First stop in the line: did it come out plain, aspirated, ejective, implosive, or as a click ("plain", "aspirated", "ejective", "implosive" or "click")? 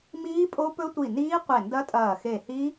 ejective